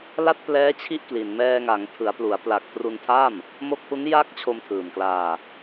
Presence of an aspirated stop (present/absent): present